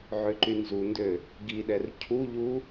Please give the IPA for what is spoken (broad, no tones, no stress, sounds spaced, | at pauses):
ʕ ø ǃ y n z u n d ø | ɡ i ɗ ɛ r cʰ u ʎ u